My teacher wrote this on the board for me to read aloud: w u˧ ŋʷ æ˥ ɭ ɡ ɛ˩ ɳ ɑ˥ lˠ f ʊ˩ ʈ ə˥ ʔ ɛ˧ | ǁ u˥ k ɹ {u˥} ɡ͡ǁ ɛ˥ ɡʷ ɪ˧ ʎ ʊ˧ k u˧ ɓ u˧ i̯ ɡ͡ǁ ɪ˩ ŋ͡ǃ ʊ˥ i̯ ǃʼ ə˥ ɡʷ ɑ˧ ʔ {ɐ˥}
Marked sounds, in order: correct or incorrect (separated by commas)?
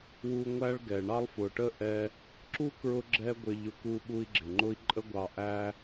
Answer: incorrect, incorrect